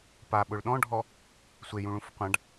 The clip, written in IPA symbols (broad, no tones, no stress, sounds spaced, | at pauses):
p a ɓ ʊ ɭ ɗ ɔ̃ ɖʱ ɔ | sʷ e j ũ ɭ ũ f qʷ ã ɖ